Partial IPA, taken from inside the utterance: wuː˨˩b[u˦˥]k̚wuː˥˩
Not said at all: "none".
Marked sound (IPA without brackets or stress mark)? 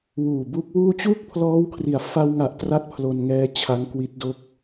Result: u˦˥